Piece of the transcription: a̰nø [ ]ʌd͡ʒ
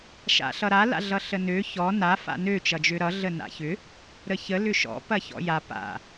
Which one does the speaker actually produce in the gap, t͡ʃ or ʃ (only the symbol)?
t͡ʃ